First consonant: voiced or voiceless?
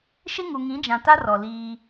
voiceless